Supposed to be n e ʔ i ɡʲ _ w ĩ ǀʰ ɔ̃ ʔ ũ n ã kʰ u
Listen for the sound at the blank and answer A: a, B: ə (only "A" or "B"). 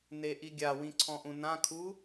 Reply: A